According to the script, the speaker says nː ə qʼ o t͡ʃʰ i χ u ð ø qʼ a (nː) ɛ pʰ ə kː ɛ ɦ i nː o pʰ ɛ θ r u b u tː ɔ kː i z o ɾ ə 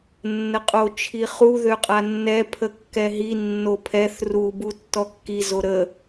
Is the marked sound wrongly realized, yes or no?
no